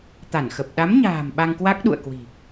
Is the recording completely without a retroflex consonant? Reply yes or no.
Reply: yes